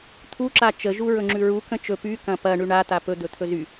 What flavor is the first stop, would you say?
aspirated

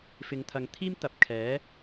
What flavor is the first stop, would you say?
aspirated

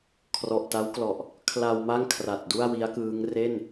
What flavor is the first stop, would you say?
aspirated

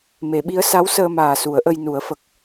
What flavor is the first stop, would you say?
implosive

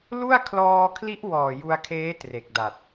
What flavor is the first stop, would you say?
aspirated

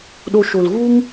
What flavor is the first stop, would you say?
implosive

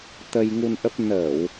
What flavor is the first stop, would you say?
plain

